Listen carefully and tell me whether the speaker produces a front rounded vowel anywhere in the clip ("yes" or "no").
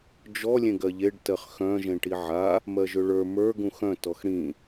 yes